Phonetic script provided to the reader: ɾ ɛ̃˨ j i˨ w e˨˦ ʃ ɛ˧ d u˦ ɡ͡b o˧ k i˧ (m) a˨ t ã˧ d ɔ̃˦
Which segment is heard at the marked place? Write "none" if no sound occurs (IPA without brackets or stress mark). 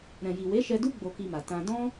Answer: m